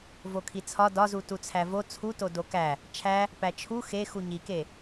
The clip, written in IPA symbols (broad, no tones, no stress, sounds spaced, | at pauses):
v o kʰ i t͡sʰ ɒ d ɒ z u t u t͡sʰ æ v o t͡sʰ u t o d o k æ | t͡ʃʰ æ | p æ t͡ʃʰ u x e x u ɲ i k e